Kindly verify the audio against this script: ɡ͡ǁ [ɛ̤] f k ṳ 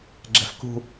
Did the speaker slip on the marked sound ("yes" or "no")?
no